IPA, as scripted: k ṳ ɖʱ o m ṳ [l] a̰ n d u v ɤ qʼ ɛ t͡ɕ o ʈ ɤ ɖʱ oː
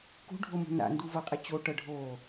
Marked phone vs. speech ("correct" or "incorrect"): incorrect